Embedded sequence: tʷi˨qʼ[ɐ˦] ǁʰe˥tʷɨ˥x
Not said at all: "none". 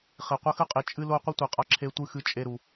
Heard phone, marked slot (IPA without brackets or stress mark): a˦